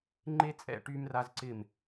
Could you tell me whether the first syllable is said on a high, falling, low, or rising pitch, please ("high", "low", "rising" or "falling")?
high